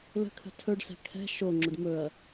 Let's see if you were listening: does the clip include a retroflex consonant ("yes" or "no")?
yes